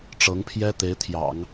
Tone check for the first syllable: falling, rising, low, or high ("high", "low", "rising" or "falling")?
rising